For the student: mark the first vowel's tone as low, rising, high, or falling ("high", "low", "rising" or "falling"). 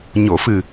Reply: low